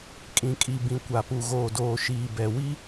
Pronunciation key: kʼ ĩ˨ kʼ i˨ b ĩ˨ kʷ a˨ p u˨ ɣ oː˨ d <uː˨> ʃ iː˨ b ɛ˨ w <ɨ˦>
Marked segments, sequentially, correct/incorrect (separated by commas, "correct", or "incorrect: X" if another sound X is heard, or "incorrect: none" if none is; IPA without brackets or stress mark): incorrect: oː˨, incorrect: i˦